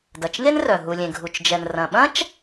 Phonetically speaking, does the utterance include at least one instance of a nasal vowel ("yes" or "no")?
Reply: yes